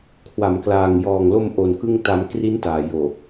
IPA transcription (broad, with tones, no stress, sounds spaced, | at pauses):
kʰ w a˩˦ m k l aː˨˩ ŋ j ɔː˨˩ ŋ l o˧ m ʔ o˧ n k ɯ˥˩ ŋ t a˦˥ m k r i˦˥ n t aː˨˩ j oː˨˩